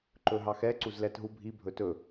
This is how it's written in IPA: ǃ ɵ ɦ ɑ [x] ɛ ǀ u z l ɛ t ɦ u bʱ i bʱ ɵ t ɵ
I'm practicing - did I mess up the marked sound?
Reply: no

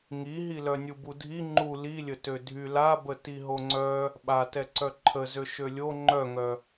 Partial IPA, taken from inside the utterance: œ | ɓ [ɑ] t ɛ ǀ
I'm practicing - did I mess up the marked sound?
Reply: yes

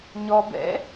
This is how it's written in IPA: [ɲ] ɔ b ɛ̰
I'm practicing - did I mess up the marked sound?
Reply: no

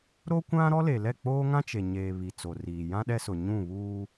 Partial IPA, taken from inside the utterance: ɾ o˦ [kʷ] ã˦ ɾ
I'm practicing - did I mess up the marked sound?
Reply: no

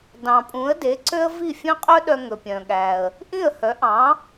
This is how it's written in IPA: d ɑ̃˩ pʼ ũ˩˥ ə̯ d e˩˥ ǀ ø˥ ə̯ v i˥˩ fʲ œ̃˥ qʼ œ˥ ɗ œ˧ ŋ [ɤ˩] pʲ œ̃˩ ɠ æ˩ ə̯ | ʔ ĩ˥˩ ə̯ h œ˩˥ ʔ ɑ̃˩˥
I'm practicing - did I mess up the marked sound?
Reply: yes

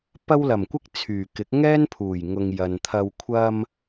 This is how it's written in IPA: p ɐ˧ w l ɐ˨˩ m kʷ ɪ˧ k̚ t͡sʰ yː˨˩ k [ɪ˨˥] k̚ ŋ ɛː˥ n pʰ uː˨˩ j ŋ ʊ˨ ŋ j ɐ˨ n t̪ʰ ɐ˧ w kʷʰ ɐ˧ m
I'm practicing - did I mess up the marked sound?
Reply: no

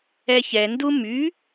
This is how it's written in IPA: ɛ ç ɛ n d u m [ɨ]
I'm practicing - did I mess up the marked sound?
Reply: yes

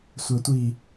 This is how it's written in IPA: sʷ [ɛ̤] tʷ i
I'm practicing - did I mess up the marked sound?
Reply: yes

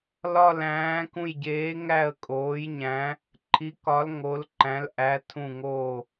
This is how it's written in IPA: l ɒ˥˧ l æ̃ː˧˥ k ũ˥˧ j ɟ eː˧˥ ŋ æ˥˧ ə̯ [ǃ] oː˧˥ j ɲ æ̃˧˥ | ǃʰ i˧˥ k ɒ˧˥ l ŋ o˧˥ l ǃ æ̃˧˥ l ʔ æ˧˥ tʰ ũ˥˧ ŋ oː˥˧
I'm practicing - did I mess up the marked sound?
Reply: yes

